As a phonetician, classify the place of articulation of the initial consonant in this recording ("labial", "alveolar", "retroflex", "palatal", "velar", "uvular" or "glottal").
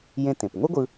palatal